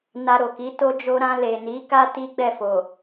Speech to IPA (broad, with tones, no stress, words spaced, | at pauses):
na˧ɾo˨ ki˨˦ to˧d͡ʒo˧ɾã˧ le˨ni˨˦ka˦ ti˦ɡ͡bɛ˦˨fo˨